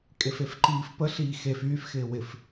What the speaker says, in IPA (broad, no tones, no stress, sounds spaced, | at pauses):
kʼ e f e f ǃ iː f p ə ɬ iː x e f yː f x ɪː w ɪ f